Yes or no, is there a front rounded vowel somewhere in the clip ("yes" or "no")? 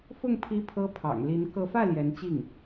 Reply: no